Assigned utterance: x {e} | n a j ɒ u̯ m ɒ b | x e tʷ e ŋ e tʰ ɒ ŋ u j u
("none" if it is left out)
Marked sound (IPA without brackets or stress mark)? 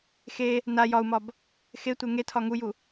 e